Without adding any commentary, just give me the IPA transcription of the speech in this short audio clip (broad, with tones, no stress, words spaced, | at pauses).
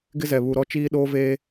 ɡɪ˦zɛ˨ βu˨ɾɔ˦ t͡ʃiː˦ɗoː˦veː˦